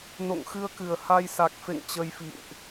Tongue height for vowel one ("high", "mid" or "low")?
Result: mid